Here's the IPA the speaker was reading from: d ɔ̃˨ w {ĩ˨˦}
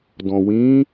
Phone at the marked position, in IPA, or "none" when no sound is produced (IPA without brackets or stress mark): ĩ˨˦